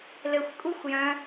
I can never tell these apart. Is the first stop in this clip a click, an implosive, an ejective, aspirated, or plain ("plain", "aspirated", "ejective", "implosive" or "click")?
ejective